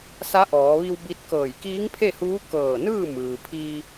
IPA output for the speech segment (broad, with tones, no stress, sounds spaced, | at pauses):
s a˧˥ ʔ ɔː˩˧ ʋ i˧ w b i˧˥ t̚ k ɤː˧˩ j k iː˧˥ ŋ pʰ e˥˨ h uː˧˥ k ɤː˧˩ n ɯː˥˨ m ɯː˩ pʰ i˧